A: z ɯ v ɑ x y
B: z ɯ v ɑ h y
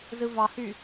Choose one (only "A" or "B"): B